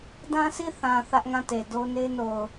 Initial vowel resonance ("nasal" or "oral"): nasal